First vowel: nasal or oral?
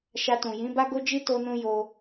oral